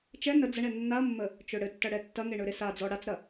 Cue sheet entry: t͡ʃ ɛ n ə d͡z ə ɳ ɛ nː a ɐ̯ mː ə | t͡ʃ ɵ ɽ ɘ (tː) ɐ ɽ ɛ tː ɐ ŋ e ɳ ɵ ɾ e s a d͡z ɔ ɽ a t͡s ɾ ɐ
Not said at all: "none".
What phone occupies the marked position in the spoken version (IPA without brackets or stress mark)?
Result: tː